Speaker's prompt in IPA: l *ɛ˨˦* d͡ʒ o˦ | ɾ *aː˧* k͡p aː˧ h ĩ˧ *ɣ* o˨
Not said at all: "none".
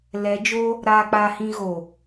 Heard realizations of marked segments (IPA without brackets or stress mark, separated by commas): ɛ˨˦, aː˧, ɣ